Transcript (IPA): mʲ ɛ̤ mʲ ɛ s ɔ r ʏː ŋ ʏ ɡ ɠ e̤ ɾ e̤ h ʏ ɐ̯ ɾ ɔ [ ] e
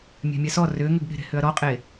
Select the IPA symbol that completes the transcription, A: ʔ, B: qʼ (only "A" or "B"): B